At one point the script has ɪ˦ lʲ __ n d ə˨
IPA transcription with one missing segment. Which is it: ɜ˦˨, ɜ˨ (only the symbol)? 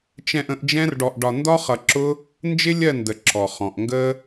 ɜ˦˨